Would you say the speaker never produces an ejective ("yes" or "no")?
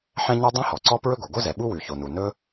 yes